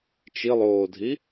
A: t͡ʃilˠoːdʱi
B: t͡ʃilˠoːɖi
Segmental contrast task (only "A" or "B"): A